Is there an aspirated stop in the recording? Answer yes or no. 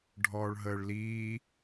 no